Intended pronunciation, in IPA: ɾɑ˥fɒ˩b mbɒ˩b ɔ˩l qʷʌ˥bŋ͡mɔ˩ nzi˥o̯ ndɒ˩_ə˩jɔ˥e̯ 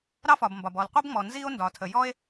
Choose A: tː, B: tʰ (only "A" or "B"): B